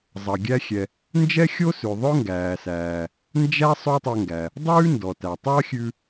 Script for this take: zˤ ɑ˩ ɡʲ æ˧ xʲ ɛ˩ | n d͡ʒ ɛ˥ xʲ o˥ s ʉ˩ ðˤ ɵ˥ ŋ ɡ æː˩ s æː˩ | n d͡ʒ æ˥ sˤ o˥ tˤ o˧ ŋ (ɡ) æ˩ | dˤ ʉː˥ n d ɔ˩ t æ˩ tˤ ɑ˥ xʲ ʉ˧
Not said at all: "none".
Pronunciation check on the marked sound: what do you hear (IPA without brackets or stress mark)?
ɡ